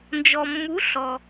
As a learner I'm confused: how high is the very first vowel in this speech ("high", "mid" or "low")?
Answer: mid